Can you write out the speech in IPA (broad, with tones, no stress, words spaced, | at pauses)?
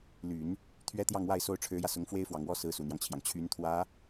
ly˨˩˦n | t̪ʰɥɛ˥t̪jɑ˥˧ŋwa˥˩ɪ̯ so˥ʊ̯ʈ͡ʂʰɻ̩˧˥jä˧sʊ˧˥ŋ fwe˥ɪ̯fwɑ˨˩ŋwɔ˥ sɹ̩˧˥su˨˩n̪jɑ˦ŋt͡ɕʰjɑ˩ŋ t͡ɕʰy˧˥nt̪ʰwä˧˥